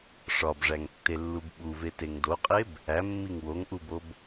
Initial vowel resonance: oral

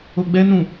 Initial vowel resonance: oral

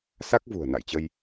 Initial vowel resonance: oral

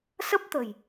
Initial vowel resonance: oral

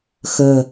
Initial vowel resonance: oral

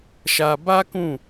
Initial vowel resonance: oral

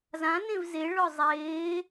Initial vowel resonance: nasal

